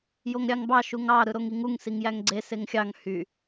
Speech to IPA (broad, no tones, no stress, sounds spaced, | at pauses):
j o ŋ ɾʲ ɑ ŋ b ɑ ʃ u ŋ ɑ ɾ ɯ ɾ o ŋ i ŋ u ŋ s i ŋ j æ ŋ ɡ͡ǀ e s e ŋ xʲ ɑ ŋ h y